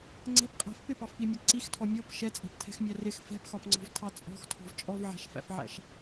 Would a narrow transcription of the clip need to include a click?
yes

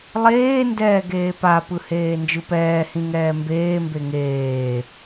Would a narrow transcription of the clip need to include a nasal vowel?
yes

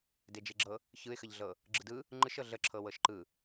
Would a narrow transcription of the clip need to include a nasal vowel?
no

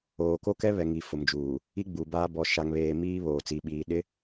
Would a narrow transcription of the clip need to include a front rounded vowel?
no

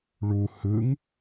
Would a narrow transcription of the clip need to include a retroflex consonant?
yes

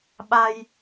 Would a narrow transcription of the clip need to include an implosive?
yes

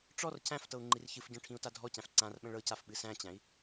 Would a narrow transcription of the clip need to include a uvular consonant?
no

